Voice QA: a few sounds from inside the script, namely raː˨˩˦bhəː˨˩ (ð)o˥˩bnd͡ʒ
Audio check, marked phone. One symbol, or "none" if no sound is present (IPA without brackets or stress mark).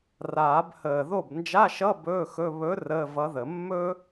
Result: ð